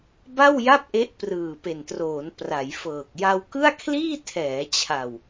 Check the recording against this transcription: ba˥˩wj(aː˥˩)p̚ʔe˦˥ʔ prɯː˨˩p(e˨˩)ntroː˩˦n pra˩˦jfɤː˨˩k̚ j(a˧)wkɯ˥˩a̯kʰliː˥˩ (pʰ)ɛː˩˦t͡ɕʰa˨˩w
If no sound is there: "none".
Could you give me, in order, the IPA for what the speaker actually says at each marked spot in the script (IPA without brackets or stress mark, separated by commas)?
a˥˩, e˨˩, a˧, tʰ